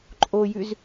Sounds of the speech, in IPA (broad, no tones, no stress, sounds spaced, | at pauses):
ǃʼ o j ʉ z